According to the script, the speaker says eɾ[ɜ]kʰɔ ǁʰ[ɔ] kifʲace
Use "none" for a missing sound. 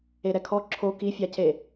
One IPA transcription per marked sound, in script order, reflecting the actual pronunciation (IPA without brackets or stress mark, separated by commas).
ɛ, o